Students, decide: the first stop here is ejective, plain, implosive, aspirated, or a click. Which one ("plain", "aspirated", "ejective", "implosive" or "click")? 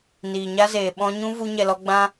implosive